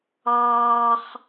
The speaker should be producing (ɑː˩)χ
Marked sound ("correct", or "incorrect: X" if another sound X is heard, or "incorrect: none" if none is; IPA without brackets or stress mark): incorrect: ɑː˥